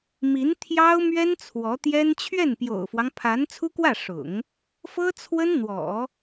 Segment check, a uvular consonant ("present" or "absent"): absent